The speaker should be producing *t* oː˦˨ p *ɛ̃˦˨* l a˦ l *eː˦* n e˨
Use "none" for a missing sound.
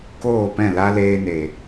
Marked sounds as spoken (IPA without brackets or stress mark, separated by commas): k, ɛ̃˦˨, eː˧